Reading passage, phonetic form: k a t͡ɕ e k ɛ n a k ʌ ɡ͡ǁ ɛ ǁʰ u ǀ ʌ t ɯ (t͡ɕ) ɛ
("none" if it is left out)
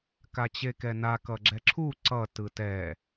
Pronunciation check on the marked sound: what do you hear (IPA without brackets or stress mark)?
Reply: t